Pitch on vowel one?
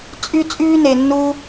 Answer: high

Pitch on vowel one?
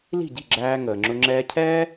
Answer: falling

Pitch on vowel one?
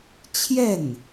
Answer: falling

